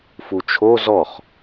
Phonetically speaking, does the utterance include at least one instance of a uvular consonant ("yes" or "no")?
yes